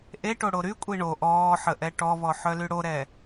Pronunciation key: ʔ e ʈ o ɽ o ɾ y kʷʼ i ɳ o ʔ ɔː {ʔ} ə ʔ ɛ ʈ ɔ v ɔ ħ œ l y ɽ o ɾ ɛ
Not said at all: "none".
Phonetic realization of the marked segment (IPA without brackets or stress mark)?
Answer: ħ